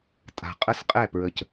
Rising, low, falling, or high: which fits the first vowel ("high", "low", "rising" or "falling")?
low